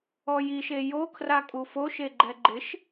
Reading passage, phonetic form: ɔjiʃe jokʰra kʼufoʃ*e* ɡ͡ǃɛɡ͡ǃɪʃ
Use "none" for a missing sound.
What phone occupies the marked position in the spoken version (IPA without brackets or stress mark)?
e